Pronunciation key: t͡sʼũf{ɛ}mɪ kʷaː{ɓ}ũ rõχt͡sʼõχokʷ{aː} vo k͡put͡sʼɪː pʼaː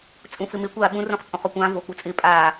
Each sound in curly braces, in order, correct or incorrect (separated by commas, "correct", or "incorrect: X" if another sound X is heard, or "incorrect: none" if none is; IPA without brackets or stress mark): incorrect: ɪ, correct, incorrect: ãː